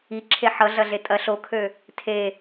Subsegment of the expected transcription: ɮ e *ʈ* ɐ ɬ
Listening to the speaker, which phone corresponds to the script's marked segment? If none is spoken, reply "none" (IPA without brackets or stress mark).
tʼ